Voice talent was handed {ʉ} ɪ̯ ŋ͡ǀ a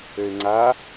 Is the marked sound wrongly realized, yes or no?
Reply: yes